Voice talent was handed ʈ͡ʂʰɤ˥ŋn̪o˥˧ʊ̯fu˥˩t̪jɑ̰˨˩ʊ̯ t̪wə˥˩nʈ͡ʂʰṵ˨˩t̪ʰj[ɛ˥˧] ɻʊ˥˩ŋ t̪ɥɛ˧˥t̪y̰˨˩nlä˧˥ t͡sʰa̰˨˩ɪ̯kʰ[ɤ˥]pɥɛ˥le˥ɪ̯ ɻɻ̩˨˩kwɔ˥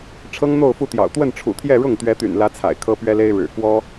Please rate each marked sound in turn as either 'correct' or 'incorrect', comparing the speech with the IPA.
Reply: correct, correct

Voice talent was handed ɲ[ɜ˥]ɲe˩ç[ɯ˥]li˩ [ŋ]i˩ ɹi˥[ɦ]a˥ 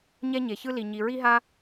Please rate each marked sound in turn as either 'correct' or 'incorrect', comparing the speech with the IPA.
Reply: incorrect: ɛ˥, correct, incorrect: ɲ, correct

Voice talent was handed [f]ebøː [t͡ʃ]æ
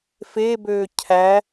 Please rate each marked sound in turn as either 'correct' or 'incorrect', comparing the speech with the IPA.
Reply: correct, incorrect: cʰ

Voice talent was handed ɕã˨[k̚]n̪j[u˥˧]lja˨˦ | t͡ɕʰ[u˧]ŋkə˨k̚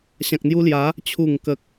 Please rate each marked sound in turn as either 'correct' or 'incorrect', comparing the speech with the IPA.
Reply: correct, incorrect: u˧, incorrect: u˨˩

